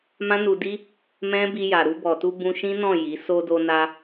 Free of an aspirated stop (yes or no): yes